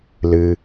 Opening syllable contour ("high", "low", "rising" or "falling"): low